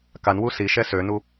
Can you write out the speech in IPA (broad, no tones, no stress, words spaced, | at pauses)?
kanwu siʃɛ sønu